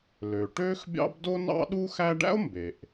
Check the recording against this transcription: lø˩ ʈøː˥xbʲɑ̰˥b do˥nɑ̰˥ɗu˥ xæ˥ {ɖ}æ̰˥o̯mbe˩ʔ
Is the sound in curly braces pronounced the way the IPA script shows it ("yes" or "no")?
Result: yes